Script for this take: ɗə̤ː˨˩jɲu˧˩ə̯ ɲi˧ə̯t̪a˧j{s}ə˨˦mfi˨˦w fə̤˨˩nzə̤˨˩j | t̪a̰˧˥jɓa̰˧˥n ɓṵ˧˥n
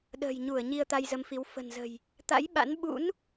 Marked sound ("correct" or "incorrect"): incorrect